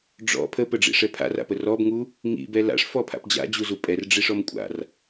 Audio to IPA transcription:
ɖ͡ʐɔ̰ pʰəpəɖ͡ʐḭʂɛ pʰa̰ra̰pə rɔbŋu | ŋḭbɛ la̰ʂfɔpʰa̰p d͡ʑa̰d͡ʑuzu pʼɛrɖ͡ʐiʂɔm kʷʼa̰r

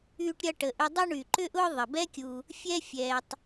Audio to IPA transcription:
yː˥ʈɾʲɐ˥ʈə˨ʔʏ˦ dˤɐ˥ɳy˩ ǃʏ˥ʔʊː˥ ðˤə˩bɛ˦kʲu˨ | fʲɛ˦fʲɛː˩tˤ

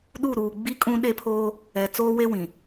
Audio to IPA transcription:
ɗu˦˨ɾuː˨ ɡ͡bi˦ kʼũ˦ɗe˦ pʰoː˦ | ɛ˨ t͡soː˦we˦ wĩ˨

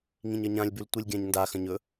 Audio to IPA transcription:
ŋĩɲɐɲãlʲbʉl tʷɨlʲɡʲãɲndaxɐ̃ɲ ɵ

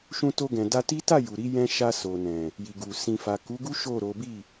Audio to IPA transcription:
ʃũ˧to˧ɡɛ̃˨ da˧ti˦ ta˦˨ ju˨ɾi˨˦ jɛ̃˧ʃa˧ so˨nɛ̃˨ | ji˨ɡu˨ sĩ˨fa˨ku˨˦ɡu˦ ʃo˦˨ɾo˨˦ bi˦˨

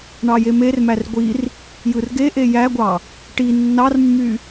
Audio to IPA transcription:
ɳɑjemermær ɡʷir | jɯrɡeʔe jæɡʷɑ | ʈi nːɑrmːy

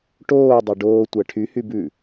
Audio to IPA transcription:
ʈoː dˤɑɖoː tʷæʈʰyhy bʉ

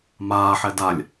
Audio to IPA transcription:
maːħɛ dalʲ

